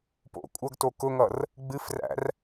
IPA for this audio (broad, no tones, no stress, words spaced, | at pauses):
po̰ kʷʼʌɡto kʊŋʌr | ɡ͡bɨfræ̰r